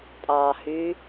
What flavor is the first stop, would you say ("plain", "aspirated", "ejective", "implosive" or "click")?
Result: ejective